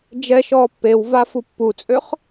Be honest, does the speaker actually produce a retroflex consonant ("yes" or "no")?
no